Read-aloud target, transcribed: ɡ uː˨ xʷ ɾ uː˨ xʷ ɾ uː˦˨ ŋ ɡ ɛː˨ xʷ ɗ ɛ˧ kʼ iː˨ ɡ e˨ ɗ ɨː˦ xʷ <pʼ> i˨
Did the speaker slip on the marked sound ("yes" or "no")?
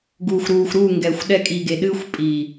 no